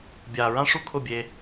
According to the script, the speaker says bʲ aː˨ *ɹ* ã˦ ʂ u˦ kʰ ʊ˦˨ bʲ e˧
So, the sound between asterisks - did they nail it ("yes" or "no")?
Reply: yes